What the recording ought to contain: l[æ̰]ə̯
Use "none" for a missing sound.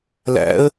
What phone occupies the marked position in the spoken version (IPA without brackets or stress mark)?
æ̰